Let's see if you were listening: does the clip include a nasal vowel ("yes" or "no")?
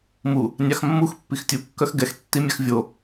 no